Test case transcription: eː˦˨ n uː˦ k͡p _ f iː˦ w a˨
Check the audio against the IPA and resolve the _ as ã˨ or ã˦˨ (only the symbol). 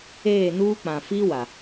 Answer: ã˨